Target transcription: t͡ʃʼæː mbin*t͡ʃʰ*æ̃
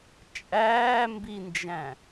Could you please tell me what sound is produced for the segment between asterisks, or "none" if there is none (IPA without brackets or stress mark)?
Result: d͡ʒ